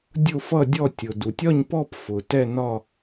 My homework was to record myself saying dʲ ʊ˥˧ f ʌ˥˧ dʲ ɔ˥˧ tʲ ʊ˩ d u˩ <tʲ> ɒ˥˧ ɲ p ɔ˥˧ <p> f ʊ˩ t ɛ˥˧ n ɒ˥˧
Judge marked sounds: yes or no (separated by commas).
yes, yes